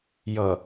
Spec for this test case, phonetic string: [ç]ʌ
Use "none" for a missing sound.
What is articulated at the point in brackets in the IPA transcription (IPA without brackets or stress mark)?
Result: j